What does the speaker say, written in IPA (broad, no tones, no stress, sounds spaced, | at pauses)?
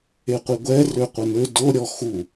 e qʷ i ɡʷ ɛ r ø qʷ ə n ø d o ɾʲ ɔ x u